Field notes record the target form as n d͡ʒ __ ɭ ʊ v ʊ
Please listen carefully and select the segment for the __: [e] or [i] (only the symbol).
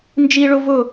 i